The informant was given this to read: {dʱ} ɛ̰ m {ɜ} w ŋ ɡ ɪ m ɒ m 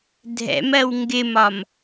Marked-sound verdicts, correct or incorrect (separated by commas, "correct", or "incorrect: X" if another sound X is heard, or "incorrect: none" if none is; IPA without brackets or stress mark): correct, correct